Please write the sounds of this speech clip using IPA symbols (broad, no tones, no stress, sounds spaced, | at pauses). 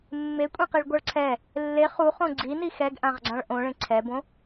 mː e kʷʼ ẽ q i ɭ ɡʷ ʌ ɭ ǀʰ ɛ | lː e χ u χ õ ɡ͡ǀ i n i x ɛ ɡ ʔ ã ʁ ɡ͡ǀ ã ɭ ʔ õ ɭ ẽ ǀʰ ɛ b õ